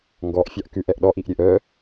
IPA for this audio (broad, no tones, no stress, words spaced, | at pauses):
ŋɡɔʔ fʲɑʔkʉʔ ɛʔɗɔʔiʔɾʲøʔ œ